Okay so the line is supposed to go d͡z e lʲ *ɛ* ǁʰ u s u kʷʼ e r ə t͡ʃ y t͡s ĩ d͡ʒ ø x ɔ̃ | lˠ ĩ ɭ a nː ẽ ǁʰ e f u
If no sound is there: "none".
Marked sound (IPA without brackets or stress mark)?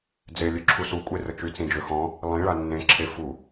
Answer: ø